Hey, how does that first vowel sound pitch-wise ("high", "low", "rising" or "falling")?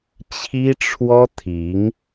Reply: high